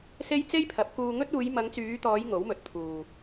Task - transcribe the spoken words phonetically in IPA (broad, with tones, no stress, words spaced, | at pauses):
se˥j t͡se˥jpʰɐ˨˥p̚kuː˧ŋɵ˥t̚ uː˨˧jmɐ˨˧ŋt͡syː˨˧t̪ɔː˨˧j ŋo˨˥wmɵ˨t̚t̪ʰuː˨